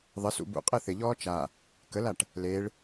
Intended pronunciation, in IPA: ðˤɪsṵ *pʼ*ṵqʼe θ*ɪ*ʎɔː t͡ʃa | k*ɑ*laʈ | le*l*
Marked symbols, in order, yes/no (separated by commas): no, yes, no, no